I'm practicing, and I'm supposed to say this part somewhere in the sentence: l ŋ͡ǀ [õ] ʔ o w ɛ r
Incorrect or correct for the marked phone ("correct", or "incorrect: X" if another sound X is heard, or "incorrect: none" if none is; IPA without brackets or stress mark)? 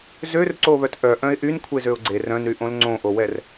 correct